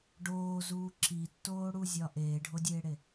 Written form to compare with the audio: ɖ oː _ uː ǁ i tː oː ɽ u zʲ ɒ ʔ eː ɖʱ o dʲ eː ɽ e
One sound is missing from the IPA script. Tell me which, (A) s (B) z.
B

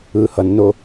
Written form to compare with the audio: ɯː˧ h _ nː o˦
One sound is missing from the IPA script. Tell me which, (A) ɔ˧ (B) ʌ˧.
B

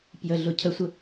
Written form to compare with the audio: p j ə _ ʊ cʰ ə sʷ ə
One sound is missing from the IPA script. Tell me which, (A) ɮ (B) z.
A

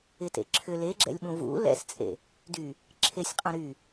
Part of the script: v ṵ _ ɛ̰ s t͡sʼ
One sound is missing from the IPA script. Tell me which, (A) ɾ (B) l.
B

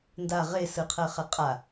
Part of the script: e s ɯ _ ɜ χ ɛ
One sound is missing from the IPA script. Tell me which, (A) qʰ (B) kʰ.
A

